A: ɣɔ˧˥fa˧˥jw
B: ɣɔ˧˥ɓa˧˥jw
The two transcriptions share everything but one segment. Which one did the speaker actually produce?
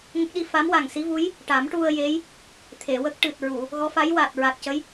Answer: A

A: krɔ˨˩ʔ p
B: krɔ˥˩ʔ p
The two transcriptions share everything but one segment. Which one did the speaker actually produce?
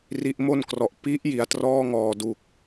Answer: A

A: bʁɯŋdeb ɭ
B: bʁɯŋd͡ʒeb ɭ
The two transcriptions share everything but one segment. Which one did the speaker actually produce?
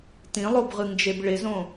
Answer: B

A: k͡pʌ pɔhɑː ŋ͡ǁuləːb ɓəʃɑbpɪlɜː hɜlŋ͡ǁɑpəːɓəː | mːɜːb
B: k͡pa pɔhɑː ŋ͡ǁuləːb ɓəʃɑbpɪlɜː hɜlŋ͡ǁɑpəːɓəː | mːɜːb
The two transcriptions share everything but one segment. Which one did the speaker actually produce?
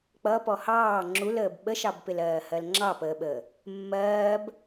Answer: A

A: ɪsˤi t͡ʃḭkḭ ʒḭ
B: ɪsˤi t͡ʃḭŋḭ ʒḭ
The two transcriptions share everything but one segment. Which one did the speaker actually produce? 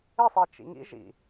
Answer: B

